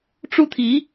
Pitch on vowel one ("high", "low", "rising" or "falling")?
high